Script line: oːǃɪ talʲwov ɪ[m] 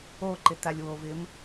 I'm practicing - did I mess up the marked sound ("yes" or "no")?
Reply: no